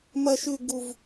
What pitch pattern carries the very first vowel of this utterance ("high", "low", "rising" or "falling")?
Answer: high